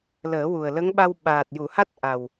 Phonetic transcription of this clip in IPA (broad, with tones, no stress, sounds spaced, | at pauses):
l əː˨˩˦ w u˨˩ ə̯ l ə˧˥ ŋ ɓ a˧ w ɓ aː˨˩ t̚ j u˨˩˨ h a˦˥ t̚ ʔ a˨˩ w